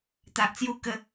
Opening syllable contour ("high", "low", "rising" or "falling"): low